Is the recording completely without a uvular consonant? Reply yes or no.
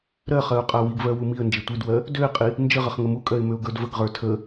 no